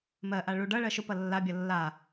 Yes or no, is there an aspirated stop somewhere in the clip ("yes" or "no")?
no